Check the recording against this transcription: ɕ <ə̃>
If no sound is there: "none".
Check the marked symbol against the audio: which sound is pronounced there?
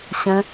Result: ə̃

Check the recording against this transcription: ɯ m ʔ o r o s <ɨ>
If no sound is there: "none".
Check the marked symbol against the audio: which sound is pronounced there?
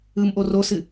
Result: ɨ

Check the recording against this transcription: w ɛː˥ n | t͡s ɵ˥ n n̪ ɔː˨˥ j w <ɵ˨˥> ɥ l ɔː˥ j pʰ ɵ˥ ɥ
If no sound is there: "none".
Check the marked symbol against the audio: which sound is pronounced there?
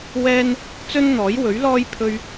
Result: ɵ˨˥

